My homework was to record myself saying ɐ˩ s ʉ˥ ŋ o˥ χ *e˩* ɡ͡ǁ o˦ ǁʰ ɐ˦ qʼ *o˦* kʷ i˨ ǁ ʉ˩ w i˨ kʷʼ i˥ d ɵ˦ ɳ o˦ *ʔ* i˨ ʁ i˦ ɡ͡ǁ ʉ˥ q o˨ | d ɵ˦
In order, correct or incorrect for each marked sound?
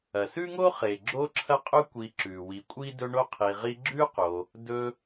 correct, incorrect: ɵ˦, incorrect: qʰ

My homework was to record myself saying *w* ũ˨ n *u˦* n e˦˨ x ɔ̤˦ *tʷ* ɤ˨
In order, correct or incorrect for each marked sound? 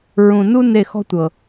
incorrect: ɹ, correct, correct

